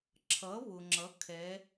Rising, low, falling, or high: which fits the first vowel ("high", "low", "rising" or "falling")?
rising